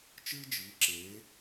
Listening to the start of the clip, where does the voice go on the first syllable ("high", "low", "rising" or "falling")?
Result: high